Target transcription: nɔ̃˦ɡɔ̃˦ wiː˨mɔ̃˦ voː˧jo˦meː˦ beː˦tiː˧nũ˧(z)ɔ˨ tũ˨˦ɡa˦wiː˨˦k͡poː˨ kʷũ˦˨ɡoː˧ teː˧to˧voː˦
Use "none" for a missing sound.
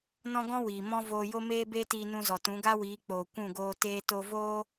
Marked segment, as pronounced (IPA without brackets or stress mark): z